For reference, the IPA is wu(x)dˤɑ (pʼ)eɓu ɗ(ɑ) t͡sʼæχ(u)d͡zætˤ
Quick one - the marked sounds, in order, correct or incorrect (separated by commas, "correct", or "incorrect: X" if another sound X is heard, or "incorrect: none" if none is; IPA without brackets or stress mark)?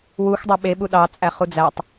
correct, incorrect: ɓ, correct, correct